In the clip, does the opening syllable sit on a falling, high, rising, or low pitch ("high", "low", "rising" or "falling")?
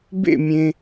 falling